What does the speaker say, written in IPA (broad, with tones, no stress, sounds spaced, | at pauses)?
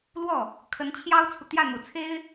l w ɔ˥˩ | kʰ ə˧˥ n t͡ɕʰ j ɑ˥ ʊ̯ t͡sʰ u˨ t̪ j ä˥˩ n̪ u˨˩ t͡sʰ e˥ ɪ̯